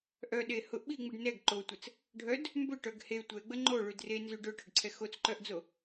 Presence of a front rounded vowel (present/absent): present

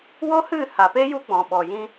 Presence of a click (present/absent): absent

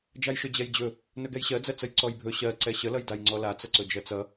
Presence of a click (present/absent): present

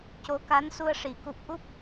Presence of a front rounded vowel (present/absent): absent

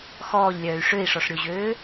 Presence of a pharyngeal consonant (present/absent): absent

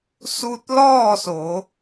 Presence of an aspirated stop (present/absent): absent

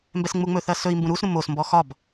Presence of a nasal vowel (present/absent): present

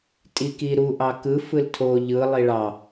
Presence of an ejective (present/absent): present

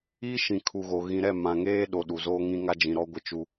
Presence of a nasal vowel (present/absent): present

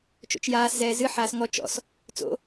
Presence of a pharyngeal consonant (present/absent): present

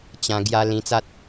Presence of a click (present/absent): absent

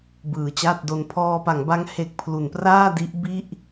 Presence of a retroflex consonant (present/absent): absent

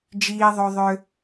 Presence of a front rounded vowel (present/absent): present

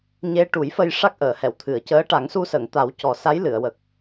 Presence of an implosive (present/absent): absent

